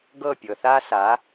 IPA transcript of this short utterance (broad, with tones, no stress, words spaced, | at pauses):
ɡɤ˥˩pʲɤ˩θa˥ sa˩˥